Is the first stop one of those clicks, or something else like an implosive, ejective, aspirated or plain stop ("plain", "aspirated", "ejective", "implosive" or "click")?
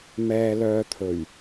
aspirated